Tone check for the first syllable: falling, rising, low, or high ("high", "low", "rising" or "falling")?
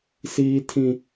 high